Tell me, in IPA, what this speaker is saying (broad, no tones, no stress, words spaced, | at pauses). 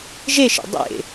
ʒeʃḛ dˤḛ